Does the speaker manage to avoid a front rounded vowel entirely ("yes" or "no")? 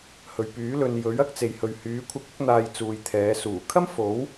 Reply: no